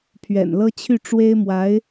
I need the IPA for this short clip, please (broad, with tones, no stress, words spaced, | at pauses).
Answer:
pʰɥɛ̰˨˩nlɤ˥ t͡ɕʰy˥˩ʈ͡ʂwe˥ɪ̯mwa˧˥ɪ̯